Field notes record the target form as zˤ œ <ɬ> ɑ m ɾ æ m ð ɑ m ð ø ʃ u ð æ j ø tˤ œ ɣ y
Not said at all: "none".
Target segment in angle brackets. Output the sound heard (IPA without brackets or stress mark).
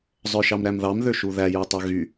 ʃ